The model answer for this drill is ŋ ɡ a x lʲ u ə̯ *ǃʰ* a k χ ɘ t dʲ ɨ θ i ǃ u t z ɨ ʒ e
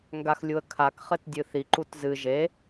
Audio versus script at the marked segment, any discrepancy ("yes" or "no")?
yes